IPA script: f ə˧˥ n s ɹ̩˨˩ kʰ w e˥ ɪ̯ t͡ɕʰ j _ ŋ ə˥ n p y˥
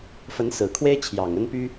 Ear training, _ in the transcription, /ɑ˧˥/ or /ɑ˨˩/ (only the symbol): ɑ˨˩